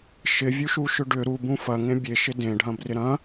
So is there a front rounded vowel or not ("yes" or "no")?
yes